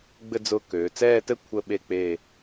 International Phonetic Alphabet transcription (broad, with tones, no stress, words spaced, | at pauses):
ɡ͡bɘ˥˧d͡zʊː˧ køː˩˧t͡sɛː˥˧tɘ˥ kʷʰə˥˧ɓe˥˧ k͡pe˥˧